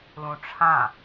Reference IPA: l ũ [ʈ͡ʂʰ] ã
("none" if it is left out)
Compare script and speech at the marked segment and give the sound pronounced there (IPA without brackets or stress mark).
ʈ͡ʂʰ